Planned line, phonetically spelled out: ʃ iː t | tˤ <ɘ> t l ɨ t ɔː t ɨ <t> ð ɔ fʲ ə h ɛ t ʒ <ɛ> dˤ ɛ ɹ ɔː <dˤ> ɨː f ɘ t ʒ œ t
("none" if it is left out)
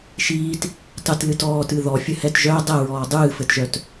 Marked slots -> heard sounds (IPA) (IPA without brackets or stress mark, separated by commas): ɘ, none, œ, dˤ